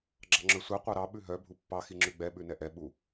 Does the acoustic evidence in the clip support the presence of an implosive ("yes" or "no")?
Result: yes